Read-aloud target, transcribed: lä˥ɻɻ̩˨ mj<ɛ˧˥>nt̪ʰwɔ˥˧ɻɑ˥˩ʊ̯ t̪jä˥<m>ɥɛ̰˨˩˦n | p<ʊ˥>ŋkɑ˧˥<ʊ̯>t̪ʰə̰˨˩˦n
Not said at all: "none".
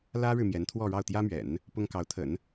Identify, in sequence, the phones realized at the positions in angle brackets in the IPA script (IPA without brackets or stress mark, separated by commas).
ɛ˧˥, m, ʊ˥, ʊ̯